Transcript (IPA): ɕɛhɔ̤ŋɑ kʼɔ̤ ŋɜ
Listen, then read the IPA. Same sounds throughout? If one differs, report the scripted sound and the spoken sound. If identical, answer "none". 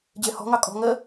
ɕ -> d͡ʑ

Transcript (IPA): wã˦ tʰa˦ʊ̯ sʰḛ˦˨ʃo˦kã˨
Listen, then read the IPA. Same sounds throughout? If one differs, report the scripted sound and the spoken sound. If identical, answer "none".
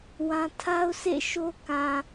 none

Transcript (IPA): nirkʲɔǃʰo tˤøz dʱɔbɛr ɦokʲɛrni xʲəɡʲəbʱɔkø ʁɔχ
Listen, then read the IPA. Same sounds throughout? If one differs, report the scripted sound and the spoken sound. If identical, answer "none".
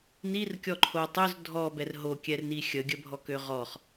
none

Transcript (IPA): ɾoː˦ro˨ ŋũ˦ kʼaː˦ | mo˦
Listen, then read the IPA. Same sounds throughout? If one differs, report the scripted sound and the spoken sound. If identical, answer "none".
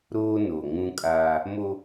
r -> n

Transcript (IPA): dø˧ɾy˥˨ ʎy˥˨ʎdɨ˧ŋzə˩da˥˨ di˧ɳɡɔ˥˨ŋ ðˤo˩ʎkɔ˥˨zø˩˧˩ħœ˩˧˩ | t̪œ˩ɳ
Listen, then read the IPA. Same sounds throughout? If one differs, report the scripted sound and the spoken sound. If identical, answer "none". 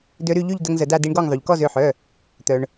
ɨ˧ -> ə˧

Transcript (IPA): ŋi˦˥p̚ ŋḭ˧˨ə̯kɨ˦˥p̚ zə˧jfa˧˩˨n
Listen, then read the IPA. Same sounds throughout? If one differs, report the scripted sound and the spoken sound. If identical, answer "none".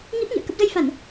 ɨ˦˥ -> ə˦˥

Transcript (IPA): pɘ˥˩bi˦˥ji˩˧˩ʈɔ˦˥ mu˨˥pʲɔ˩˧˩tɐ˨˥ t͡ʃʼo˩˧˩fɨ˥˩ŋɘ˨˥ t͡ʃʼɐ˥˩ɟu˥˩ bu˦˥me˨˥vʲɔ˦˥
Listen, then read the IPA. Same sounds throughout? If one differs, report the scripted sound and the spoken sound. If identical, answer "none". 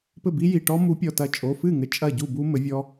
e˨˥ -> ɘ˨˥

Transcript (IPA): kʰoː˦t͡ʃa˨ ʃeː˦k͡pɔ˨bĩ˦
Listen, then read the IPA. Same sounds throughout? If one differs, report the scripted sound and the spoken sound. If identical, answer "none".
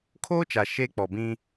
none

